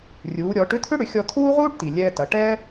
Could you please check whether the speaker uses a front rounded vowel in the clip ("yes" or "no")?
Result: yes